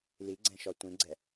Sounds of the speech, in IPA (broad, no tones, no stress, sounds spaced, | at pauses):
l i ɡ͡ǀ ɛ̃ ʃ ɔ tʷ ĩ ɡ͡ǀ ɛ